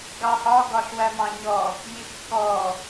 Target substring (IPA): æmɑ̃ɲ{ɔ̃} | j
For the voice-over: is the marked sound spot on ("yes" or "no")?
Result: no